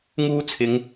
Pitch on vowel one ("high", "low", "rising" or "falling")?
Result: high